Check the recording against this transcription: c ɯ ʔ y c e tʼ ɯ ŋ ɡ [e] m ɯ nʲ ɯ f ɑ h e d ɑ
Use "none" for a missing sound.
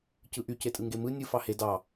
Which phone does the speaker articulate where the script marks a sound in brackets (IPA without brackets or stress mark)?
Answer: e